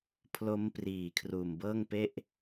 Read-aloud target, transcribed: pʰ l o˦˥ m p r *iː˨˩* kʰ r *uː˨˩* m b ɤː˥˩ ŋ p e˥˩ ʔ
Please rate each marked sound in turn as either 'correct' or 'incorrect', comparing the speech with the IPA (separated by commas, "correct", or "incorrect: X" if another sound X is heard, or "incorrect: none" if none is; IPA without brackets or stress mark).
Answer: correct, correct